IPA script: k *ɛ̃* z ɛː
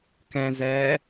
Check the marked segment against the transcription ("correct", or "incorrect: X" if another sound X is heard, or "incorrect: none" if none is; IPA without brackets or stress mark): correct